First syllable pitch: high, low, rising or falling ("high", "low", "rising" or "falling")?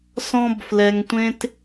high